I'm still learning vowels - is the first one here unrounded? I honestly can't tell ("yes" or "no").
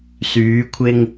no